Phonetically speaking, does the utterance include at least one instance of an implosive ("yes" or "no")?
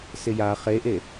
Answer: no